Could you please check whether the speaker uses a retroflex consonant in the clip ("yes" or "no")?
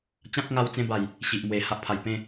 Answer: no